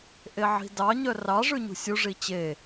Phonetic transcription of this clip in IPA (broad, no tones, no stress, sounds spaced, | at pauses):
ʔ e ʕ i̤ d ɑ ɲ œ r ɑ ʐ ʉ ɲ ṳ sʲ u ʐ i t͡ɕ e